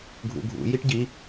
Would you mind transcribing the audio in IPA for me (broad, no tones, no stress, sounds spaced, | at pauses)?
ɡʱ ṵ ɡʱ ṵ j i ʈ ɟ i